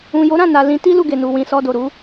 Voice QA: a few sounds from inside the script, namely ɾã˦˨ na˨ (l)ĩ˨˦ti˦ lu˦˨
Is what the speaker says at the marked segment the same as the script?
yes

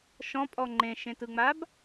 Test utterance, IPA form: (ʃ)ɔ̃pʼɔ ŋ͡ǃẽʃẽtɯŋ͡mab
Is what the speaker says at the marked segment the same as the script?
yes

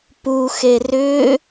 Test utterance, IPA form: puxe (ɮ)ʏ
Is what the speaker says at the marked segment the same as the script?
no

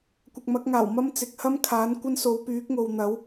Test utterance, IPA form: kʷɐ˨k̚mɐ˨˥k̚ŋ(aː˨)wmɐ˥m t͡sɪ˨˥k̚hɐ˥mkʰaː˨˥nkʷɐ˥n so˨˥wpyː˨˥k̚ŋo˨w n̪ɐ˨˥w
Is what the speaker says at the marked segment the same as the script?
no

